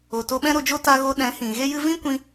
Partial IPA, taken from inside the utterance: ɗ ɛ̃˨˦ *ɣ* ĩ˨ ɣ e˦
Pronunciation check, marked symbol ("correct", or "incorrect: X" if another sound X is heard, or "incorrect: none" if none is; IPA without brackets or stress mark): incorrect: h